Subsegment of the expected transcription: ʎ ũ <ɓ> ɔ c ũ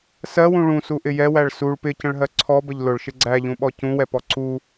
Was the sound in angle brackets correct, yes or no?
yes